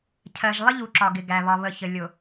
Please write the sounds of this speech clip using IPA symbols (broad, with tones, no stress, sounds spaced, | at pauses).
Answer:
cʰ ɜ˨ ʒ lˠ ɪ˦ ʎ u˨ ǁ ɒ˨ ɡ ɪ˨ ɡ æ˨ β ɒ˨ β ə˨ ç ə˨ lʲ ʊ˨